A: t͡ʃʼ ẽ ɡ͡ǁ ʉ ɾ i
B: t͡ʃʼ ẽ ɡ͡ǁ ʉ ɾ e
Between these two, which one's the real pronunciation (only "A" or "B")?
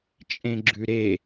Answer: B